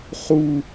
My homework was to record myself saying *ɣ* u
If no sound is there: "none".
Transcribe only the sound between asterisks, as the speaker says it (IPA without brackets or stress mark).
χ